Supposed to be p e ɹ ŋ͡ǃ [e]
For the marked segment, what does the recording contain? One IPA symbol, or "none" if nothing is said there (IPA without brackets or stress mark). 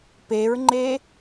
e